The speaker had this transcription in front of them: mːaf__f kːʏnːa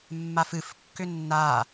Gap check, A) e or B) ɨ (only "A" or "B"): B